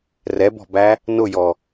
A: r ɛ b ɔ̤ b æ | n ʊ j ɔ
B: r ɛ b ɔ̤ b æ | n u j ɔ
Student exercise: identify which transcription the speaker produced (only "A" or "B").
A